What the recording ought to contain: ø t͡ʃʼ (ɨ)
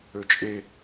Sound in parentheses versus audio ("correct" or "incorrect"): incorrect